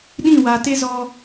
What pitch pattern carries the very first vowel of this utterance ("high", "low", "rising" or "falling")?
falling